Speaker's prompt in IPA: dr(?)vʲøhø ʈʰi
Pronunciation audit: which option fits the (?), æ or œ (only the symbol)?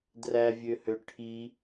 æ